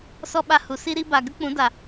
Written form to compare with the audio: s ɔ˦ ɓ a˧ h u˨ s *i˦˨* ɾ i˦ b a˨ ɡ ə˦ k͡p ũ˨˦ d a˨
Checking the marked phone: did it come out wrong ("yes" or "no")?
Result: yes